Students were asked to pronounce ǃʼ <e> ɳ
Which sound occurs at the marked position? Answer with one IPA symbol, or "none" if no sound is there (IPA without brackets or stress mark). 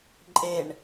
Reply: e